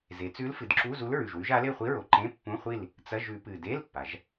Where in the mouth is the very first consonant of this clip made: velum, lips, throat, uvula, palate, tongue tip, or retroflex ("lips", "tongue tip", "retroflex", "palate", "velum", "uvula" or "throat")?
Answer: tongue tip